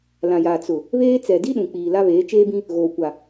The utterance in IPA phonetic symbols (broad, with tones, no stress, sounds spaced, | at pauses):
l ã˨ j aː˨ t͡s ʊ˨ | β eː˦ t͡s ɛ˨ d i˦ ɗ ũ˨ k͡p iː˨ l a˦ β eː˨˦ t͡ʃ eː˦ b ĩ˦ | ɣ oː˨ kʷ a˨